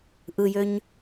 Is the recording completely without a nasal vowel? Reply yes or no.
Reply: yes